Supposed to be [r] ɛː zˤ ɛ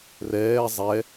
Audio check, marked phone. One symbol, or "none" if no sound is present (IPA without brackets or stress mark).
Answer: r